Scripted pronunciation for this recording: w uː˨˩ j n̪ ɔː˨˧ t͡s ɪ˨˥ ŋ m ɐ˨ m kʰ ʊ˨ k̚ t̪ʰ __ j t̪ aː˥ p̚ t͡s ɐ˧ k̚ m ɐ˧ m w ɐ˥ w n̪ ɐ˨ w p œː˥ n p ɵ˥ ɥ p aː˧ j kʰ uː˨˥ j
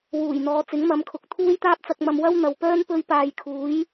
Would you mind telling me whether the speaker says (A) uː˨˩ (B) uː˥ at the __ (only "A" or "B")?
B